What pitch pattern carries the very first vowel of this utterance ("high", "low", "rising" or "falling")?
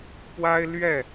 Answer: high